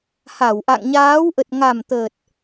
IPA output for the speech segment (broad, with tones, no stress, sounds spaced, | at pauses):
h a˧˩ w ʔ a̰˧˨ ŋ ɲ aː˨˦ w ʔ ə˨˩ t̚ ŋ a˨˩ m t̪ əː˨˩ t̚